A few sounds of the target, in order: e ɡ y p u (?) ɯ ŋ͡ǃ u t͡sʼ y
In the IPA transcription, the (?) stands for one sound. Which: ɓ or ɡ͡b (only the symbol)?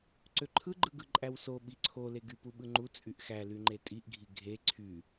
ɓ